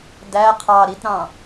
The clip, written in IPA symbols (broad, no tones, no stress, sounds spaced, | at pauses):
d æ qʰ ɑ ɾ i t ɾ ɑ̃